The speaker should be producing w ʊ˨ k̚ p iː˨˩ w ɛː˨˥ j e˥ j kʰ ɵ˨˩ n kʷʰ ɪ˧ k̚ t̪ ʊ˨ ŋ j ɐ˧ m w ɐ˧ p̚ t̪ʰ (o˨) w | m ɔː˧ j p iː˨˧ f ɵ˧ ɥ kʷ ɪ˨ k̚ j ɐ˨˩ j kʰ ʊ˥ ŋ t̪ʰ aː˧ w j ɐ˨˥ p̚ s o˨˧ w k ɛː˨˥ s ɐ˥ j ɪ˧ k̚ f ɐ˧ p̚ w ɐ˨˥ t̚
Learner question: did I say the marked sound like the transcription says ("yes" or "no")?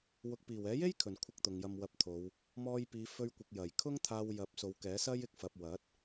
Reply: no